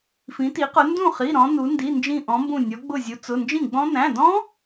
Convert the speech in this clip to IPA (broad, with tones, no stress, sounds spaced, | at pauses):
f ĩ˩˧ t i˩˧ q ʊ˩˧ n d ũ˥˩ χ i˩˧˩ ɾ ɔ̃˩˧ n u˩˧ n d i˩˧˩ n d͡ʒ ĩ˧˩ ʔ ɔ̃˩˧ m b ũ˧˩ nʲ ɔ˩˧ ɡ͡b ʊ˧˩ zʲ u˩˧ t͡s ʊ˩˧˩ n d͡ʒ ĩ˥˩ ɡ͡b ɔ̃˦˥ n æ̃˩˧˩ d ɔ̃˦˥